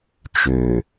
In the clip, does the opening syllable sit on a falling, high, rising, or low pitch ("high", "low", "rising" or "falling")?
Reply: low